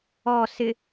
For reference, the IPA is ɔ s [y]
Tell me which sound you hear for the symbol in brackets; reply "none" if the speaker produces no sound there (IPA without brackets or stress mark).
ɪ